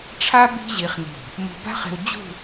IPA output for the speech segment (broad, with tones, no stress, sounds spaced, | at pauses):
ʈ͡ʂʰ a˥ b i̤˥ ʑ i˧ χ n i̤˧˩ | m o̤˧ b a̤˥ χ e̤˧ w d͡ʑ ṳ˥˧